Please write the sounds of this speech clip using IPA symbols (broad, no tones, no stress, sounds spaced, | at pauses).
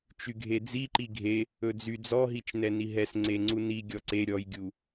t͡ʃ y ɡʱ e d͡z i ǃ i ɡʱ e | ɵ d͡z y d͡z ɔ ɦ i t͡ʃ n ɛ n i ɦ ɛ s ŋ͡ǀ e ŋ͡ǀ u n i ɡʲ ɔ ǀ e ɾʲ ɔ j ɡʲ u